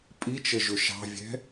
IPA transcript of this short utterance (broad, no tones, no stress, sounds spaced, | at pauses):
pʼ i t͡ʃ ə ʒ ʊ ʃ ɑ̤ vʲ ɛ̤